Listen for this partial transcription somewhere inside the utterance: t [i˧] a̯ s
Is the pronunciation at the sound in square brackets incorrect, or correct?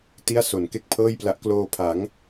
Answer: incorrect